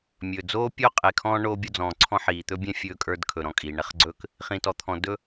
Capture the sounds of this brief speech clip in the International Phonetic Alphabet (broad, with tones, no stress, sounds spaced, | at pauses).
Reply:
mʲ ɵː˩ d͡z oː˥ pʲ o˥ qʼ e˩ kʰ ɔ̃ː˦ ɳ oː˥ bʲ o˥ d͡z ɔ̃ː˩ ǀʰ ɔ̃˥ ħ iː˩ t̪ ɵ˥ bʲ ɛ̃˥ fʲ ɵː˦ kʼ ə˞˦ d kʰ ɵ˩ ɾ ɔ̃˨ kʼ iː˩ ɳ ɛ˦ χ ɡ͡ǀ ɵː˦ k | χ ĩ˩ t ɔ˩ t̪ʰ ɔ̃˩ d ɵ˥